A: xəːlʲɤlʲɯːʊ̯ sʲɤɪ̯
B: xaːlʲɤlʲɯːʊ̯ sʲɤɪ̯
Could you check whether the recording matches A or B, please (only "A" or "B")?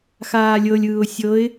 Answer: B